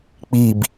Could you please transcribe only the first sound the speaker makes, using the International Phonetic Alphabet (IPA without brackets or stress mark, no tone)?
k͡p